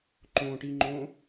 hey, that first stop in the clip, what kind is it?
click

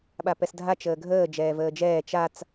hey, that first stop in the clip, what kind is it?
implosive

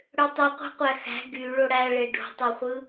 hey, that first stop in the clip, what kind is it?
plain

